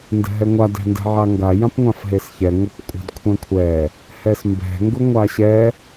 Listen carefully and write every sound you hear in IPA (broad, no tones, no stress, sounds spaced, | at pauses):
n d ɛ̤ ɦ ɛ ŋʷ a d ɛ̤ n d ɛ̤ ʕ a ŋ ɡ a j ã p ŋʷ ã f ɦ e s ç ɛ ŋʷ e p kʷʼ a̤ d kʷʰ ɛ̃ kʷʰ ɛ | h ɛ s m b ɛ̤ ŋ ɡ ʊ ŋʷ a ɕ ɛ